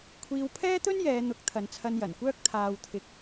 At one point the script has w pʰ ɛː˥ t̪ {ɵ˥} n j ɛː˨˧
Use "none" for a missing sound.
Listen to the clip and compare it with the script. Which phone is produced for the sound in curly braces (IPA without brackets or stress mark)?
ɵ˥